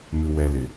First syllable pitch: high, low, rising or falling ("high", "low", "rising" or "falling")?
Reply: low